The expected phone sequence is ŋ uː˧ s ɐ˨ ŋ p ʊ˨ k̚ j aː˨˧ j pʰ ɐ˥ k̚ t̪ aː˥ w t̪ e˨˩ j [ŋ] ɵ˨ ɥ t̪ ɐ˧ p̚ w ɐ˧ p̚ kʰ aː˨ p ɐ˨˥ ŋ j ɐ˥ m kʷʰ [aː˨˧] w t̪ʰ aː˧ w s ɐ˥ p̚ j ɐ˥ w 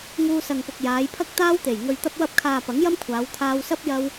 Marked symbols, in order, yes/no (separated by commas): yes, yes